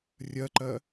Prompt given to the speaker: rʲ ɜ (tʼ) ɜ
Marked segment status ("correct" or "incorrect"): incorrect